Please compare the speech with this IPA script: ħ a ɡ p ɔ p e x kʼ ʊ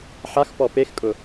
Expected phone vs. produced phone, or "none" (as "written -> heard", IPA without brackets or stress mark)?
ɡ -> x